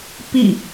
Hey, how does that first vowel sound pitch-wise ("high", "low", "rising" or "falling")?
falling